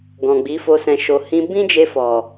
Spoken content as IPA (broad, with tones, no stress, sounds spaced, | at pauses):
ɡ ɔ̃˨ ɡ͡b i˨˦ f o˧ s ɛ̃˨ ʃ o˨ h ĩ˧ b ĩ˦ d͡ʒ e˧ f ɔ˨